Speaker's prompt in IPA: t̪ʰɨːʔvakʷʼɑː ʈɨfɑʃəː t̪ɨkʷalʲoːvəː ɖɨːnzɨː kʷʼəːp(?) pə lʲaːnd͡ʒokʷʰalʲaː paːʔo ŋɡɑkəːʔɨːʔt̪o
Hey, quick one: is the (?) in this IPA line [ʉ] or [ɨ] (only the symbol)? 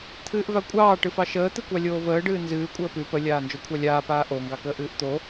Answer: ʉ